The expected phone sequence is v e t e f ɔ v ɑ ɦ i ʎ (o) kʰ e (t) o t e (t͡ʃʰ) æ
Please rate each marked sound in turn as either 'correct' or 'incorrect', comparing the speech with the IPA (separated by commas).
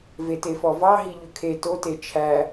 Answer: incorrect, correct, correct